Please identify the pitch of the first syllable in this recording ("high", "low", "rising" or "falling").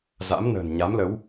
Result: rising